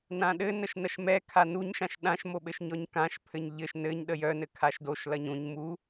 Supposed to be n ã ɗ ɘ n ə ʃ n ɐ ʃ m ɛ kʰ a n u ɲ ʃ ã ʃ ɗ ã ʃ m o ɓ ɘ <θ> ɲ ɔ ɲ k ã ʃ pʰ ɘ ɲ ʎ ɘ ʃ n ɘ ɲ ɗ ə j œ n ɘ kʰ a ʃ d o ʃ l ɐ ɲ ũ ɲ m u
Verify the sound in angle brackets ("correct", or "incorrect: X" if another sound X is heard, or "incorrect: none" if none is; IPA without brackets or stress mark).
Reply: incorrect: ʃ